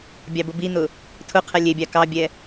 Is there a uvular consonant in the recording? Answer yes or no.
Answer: yes